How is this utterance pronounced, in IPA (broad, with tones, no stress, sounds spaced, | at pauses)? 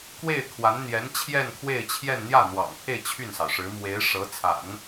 k w e˥˩ ɪ̯ kʰ w a˧˥ n n̪ j ɛ˧˥ n t͡ɕʰ j ɛ˥˧ n kʰ w e˥˧ ɪ̯ t͡ɕʰ j ɛ˥˧ n n̪ j ä˥˩ n̪ w ɑ̰˨˩ ŋ pʰ e˥˧ ɪ̯ t͡ɕʰ y˥˩ n s ɑ˩ ʊ̯ ʂ ɻ̩˧˥ m w e˧˥ ɪ̯ ʂ ɤ˧˥ t͡sʰ a̰˨˩˦ n